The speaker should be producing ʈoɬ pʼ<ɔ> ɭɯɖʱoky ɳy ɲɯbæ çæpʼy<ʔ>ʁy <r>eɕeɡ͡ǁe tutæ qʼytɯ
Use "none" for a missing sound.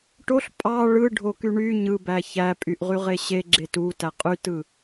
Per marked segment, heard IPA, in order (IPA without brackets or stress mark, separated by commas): ɑ, ʔ, ʁ